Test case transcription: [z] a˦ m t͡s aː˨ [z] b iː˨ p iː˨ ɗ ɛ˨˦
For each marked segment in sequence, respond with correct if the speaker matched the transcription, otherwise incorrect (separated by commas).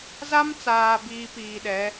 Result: correct, incorrect